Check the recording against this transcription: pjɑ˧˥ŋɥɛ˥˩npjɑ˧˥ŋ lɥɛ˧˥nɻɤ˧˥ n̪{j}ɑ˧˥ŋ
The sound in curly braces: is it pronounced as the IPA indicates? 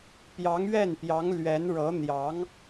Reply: yes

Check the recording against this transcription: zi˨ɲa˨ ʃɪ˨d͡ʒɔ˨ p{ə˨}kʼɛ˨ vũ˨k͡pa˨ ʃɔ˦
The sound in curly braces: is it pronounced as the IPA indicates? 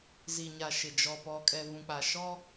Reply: no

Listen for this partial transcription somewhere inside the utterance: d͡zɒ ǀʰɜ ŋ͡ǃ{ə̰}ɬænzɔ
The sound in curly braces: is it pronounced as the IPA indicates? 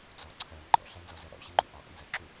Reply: no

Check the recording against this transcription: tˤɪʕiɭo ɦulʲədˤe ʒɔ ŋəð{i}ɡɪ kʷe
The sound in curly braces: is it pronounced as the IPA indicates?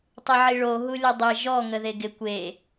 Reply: no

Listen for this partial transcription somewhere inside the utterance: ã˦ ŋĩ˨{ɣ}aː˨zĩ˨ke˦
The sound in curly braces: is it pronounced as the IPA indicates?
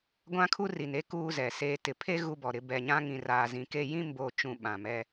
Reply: no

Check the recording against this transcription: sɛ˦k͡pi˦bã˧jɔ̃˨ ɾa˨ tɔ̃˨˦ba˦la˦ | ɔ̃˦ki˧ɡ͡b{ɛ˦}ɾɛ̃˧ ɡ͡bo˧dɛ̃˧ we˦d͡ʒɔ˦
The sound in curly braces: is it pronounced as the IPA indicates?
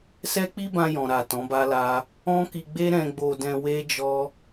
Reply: no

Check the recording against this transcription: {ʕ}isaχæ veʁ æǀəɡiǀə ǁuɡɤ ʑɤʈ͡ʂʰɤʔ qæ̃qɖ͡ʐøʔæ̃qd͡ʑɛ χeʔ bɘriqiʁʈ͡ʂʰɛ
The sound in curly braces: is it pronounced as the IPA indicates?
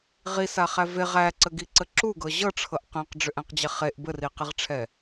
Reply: no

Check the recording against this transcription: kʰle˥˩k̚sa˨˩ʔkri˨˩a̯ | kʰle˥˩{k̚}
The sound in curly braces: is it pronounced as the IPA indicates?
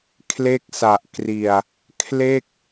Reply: yes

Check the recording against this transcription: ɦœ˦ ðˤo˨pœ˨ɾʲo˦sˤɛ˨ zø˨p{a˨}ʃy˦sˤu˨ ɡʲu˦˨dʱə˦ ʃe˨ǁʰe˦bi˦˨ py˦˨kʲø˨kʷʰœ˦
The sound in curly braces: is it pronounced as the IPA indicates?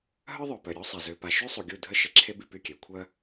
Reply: yes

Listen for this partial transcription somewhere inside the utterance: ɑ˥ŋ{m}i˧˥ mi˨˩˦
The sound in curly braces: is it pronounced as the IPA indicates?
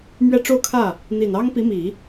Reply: no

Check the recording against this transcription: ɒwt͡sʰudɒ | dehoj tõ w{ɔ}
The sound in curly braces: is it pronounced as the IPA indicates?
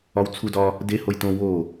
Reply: no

